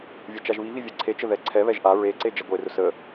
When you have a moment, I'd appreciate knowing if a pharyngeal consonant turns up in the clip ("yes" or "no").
no